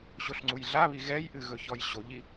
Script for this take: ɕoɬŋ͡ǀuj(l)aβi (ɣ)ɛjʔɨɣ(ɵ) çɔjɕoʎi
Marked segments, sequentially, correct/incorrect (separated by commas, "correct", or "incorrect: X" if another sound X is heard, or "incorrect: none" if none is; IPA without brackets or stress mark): incorrect: ɮ, correct, correct